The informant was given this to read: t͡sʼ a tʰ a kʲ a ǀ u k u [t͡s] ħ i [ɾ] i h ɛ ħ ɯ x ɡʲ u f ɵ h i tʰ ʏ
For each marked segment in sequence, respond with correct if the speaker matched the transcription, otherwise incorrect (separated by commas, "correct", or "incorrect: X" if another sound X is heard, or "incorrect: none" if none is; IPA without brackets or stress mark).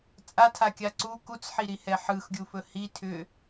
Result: correct, correct